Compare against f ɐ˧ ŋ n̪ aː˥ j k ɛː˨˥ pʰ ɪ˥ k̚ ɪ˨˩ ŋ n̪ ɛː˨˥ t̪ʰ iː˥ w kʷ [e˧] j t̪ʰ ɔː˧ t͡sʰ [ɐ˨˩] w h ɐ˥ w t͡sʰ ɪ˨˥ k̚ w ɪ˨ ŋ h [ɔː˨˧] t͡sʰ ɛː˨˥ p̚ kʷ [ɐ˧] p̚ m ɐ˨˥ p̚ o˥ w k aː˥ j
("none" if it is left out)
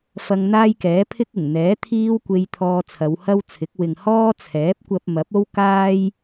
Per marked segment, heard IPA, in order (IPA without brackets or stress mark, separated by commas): e˧, ɐ˨˧, ɔː˥, ɐ˧